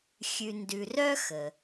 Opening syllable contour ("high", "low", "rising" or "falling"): low